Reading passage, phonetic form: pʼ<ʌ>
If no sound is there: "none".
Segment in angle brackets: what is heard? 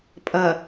ʌ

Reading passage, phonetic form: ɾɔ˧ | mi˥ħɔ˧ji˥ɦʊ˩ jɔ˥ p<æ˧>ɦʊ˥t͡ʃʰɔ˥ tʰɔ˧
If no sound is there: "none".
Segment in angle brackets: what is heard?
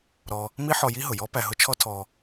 æ˧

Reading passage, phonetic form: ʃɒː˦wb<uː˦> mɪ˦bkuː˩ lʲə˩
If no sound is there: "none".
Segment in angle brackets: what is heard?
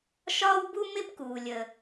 u˦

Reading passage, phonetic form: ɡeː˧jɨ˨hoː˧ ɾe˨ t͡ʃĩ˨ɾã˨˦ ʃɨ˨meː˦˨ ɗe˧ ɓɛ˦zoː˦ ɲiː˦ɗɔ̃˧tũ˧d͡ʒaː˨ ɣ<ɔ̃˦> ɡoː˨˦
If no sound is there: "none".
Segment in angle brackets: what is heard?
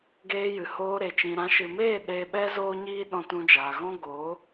ɔ̃˦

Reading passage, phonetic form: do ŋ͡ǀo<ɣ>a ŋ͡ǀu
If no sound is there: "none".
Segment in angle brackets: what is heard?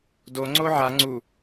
ʕ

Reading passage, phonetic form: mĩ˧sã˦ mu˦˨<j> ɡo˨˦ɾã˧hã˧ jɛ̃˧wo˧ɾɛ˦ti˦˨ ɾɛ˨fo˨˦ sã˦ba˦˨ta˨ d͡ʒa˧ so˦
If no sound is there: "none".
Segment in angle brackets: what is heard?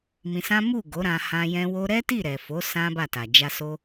none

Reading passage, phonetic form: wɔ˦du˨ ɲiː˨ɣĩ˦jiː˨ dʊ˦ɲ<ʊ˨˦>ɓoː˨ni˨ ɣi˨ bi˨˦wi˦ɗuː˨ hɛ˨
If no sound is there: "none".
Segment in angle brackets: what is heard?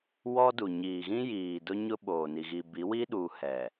ʊ˦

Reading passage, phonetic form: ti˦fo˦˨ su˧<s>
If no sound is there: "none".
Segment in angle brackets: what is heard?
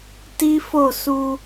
none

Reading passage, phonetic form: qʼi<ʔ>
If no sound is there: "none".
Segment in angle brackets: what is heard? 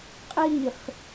χ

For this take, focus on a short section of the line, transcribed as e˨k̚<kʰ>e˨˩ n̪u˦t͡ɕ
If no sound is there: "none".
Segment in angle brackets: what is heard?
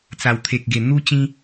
ɡ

